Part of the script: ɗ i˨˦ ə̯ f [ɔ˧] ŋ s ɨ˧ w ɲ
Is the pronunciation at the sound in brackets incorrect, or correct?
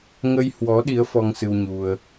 correct